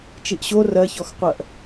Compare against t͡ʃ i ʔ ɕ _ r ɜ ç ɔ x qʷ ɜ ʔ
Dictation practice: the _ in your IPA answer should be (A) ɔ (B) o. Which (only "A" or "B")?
B